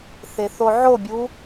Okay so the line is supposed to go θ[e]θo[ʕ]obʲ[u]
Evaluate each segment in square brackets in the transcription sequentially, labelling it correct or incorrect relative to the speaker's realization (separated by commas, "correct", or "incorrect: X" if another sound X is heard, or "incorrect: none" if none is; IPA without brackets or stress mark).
correct, correct, correct